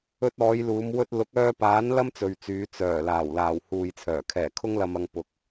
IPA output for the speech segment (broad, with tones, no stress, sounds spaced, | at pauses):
ɵ˧ t̚ ɔː˨˧ j l uː˨˧ m w ɵ˧ t̚ l ʊ˨˥ k̚ œː˧ p aː˨˥ n l ɐ˥ m t͡s ɵ˨ ɥ t͡s yː˨˧ t͡s œː˨˩ l aː˨˩ w l aː˨˩ w h uː˨ j t͡sʰ œː˨˩ kʰ ɛː˨˩ kʰ ʊ˧ ŋ l ɐ˨ m ɐ˨ ŋ p ʊ˨ k̚